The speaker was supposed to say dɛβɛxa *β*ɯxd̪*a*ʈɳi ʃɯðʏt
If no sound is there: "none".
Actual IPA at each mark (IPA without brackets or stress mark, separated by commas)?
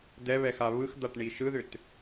β, a